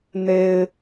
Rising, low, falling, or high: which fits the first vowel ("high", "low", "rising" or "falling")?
low